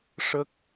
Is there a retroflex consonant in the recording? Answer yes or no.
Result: yes